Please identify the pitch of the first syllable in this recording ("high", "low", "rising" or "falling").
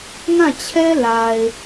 falling